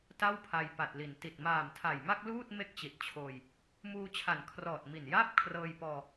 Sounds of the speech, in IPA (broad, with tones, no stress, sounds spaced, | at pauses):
t a˥˩ w pʰ a˧ j p a˨˩ t̚ l i˩˦ n t i˨˩ t̚ m aː˨˩ m tʰ a˨˩ j m a˥˩ k̚ l uː˥˩ t̚ m e˥˩ k̚ t͡ɕ i˨˩ t̚ t͡ɕʰ oː˧ j | m uː˧ t͡ɕʰ a˨˩ n kʰ r ɔː˨˩ t̚ m i˨˩ n j aː˥˩ p̚ kʰ r ɤː˧ j p ɔː˧